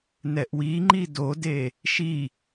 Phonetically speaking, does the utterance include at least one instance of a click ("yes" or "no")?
yes